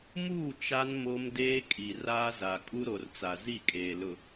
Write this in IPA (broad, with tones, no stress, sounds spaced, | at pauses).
m uː˦˨ t͡ʃ a˦ n m o˦ m d eː˦ kʼ i˨ r aː˦ z a˨ kʼ u˦ ɾ o˨ r t͡s a˨ z i˦˨ kʼ eː˨ l ʊ˨